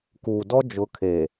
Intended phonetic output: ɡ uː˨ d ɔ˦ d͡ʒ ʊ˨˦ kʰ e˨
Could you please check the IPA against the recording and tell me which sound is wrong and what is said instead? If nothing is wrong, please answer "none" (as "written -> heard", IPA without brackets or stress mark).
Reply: ɡ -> k